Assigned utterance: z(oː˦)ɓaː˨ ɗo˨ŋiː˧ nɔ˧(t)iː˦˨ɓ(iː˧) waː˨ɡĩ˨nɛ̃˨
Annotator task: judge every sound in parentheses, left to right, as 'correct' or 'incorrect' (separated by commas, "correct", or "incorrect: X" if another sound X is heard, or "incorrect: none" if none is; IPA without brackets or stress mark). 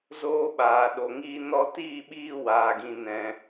incorrect: oː˧, correct, correct